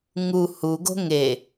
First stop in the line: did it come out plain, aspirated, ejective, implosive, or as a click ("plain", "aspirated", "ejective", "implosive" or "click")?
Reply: plain